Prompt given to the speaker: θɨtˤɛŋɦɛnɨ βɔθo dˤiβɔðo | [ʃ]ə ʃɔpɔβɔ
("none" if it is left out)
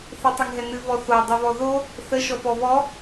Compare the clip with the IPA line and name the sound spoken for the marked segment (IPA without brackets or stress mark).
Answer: θ